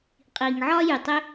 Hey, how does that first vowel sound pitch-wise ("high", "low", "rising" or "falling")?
low